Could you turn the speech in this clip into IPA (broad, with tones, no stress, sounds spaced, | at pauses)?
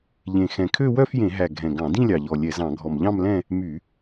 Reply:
ʎ ẽ˨˩ x ɛ̃˨˩ kʰ ø˥˧ w œ˥˧ f j ẽ˧˩˧ ɦ æ˨˩ ɡʱ ɛ̃˨˩ ɡ ɑ̃˧˩˧ d ĩ˥˧ lʲ ɑ˨˩ ʎ ɔ˨˩ lʲ ɛ˧˩˧ z ɑ̃˧˩˧ ɡʱ ɔ˨˩ m ʎ ɑ̃˥˧ m l ɛ̃˥˧ | m y˧˩˧